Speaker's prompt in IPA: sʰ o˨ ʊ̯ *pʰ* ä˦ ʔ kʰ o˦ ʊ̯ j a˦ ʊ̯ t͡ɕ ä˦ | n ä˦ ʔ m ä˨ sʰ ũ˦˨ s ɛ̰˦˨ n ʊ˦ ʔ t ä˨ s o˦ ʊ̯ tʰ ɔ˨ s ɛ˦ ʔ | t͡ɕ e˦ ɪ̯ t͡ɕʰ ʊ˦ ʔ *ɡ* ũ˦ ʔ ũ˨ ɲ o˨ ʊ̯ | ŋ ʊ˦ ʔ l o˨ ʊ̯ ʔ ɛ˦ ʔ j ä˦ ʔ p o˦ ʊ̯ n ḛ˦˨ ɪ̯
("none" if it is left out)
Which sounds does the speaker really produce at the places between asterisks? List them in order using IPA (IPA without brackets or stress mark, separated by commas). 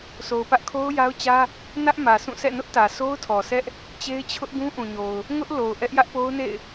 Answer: p, ɡ